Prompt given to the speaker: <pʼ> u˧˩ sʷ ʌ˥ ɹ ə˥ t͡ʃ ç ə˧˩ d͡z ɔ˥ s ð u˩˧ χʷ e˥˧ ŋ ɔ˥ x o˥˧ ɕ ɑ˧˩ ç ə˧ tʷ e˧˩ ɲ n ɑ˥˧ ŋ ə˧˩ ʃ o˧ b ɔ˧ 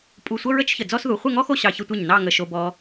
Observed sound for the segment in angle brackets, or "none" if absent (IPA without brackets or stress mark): pʼ